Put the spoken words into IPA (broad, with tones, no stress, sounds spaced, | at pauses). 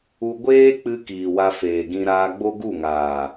u˧ ɡʷ eː˦ k͡p ɨ˧ k iː˨ w a˧ f eː˨ ɡ ĩ˧ ɾ aː˧ ɡ͡b o˦ ɡ u˦˨ ŋ aː˨